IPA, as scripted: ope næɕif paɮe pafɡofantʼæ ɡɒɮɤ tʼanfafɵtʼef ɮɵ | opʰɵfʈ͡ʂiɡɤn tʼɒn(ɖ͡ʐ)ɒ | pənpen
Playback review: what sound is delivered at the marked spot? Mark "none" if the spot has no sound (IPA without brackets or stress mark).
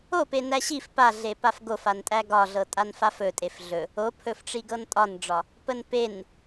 ɖ͡ʐ